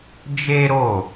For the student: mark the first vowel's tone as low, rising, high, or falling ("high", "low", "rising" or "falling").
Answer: high